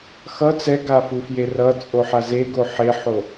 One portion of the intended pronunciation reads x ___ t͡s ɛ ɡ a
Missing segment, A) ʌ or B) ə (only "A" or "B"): A